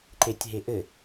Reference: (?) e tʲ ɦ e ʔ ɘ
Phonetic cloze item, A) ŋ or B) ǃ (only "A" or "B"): B